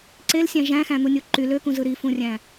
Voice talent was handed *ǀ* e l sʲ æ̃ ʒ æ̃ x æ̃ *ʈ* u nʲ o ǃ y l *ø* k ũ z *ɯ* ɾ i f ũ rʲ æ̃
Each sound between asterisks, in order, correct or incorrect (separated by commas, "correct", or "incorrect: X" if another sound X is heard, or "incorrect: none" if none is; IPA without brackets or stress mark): correct, incorrect: n̪, correct, correct